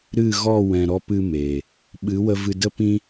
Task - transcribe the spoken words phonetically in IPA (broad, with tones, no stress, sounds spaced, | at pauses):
ɾ ɨ˦˨ ɣ ɔ˦˨ w ɛ̃˨ ɾ ɔ˧ p ɨ˧ m e˨ | ɓ ɨ˨˦ w ə˧ v ɨ˧ d ə˦ p ĩ˦